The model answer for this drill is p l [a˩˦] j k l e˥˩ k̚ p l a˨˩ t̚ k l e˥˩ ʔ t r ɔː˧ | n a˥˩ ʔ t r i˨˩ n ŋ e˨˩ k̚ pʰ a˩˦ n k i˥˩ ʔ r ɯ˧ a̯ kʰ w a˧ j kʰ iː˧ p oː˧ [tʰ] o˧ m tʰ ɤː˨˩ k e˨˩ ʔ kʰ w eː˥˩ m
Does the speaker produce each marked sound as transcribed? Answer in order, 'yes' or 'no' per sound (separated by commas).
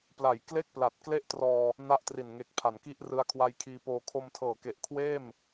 yes, no